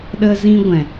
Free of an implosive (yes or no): no